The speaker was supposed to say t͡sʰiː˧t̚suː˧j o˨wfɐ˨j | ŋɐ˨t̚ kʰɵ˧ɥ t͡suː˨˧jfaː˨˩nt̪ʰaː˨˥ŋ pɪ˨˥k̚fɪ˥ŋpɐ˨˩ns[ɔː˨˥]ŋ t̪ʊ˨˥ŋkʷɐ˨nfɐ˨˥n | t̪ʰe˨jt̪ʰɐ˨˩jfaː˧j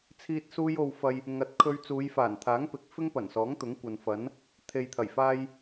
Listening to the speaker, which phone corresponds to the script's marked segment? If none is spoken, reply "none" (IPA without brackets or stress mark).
ɔː˨˥